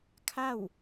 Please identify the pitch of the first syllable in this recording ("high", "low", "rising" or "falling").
falling